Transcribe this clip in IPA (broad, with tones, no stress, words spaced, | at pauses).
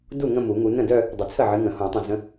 du˥˩ ŋə̃˥˧mu˨˩˦ŋu˨˦ nə̃˥˩dœ˥˧ | dˤɨ˨t͡sʰə˥˩ʕɨ˨˦ŋə̃˨˩˦ hõ˨˩˦tˤə̃˨ zə̃˨˦